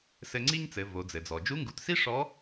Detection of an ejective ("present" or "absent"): absent